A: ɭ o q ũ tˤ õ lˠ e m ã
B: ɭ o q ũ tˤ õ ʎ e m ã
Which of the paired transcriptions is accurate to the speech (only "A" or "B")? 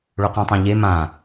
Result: B